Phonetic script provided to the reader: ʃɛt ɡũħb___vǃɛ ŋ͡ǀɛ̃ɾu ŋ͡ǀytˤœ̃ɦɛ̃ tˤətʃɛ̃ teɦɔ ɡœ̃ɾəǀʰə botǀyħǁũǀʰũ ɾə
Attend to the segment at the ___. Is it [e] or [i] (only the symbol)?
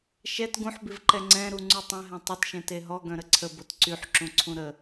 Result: i